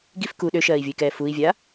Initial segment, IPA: ɡ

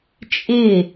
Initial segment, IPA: t͡ʃʼ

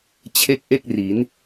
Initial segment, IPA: t͡ɕʰ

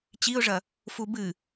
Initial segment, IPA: t͡ɕ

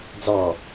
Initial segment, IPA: d͡z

